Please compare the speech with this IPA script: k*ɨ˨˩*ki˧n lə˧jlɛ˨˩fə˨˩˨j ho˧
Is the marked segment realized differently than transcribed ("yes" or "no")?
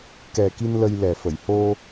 yes